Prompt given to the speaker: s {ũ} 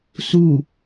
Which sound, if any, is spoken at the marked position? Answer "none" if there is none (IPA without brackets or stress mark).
u